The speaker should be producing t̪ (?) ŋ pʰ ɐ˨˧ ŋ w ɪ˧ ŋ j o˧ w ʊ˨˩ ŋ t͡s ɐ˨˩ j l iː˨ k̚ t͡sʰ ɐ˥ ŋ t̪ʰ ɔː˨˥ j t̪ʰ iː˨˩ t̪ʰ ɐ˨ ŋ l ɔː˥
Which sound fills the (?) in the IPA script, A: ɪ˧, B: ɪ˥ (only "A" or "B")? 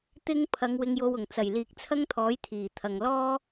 B